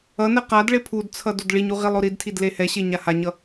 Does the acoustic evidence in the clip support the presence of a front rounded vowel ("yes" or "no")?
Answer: no